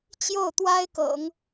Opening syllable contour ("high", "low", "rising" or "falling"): falling